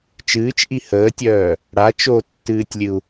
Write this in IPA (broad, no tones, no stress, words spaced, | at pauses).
t͡ʃɨːt͡ʃʔi həːtʲœː | ɽa t͡ʃotːɨːtʲlʲɨu̯